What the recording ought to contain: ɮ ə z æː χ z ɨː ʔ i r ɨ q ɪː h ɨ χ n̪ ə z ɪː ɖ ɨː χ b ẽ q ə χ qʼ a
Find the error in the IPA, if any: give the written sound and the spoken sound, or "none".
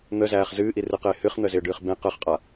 ɮ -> n̪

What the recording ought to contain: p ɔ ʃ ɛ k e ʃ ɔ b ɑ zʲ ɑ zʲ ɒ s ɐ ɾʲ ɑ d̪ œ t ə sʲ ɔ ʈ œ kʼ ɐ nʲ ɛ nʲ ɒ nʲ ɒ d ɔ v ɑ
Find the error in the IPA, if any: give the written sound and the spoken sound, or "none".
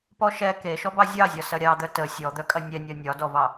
ʈ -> d̪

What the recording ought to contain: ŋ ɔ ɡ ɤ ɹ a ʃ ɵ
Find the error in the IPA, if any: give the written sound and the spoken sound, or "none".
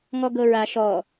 ɵ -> ɔ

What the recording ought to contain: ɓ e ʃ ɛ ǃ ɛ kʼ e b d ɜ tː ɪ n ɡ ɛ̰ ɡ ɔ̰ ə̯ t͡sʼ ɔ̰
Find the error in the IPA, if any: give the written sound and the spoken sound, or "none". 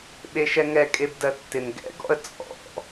ǃ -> ŋ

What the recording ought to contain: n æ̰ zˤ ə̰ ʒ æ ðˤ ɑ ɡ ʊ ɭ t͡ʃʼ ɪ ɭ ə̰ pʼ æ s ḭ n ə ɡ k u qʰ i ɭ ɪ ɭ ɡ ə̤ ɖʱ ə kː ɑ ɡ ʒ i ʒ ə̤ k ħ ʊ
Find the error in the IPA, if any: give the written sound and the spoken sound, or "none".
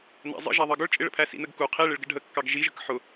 pʼ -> pʰ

